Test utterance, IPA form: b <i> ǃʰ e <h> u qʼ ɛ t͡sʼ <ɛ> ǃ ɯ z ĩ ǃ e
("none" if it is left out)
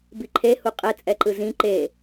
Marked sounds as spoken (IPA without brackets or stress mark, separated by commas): i, h, ɛ